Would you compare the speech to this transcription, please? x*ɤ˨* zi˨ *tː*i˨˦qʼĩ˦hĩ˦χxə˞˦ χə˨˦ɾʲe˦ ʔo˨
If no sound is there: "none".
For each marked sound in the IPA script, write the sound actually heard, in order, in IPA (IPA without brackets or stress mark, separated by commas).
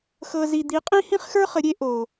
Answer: ɤ˨, d̪